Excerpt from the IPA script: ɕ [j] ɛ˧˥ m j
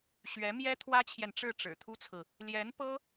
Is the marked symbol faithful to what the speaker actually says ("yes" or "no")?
no